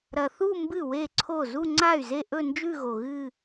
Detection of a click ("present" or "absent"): present